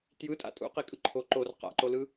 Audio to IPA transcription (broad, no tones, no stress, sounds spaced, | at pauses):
t j ɯ tʼ a̰ tʼ ṵ q i kʼ ɯ ǃʰ o ǃ o r q a̰ ǃ o l ɯ